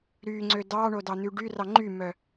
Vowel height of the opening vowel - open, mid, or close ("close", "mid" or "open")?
close